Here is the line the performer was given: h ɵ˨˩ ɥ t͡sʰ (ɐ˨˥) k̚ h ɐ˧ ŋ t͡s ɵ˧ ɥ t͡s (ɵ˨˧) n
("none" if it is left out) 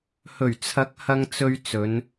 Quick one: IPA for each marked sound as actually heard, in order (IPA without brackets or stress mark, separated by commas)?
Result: ɐ˨˥, ɵ˨˧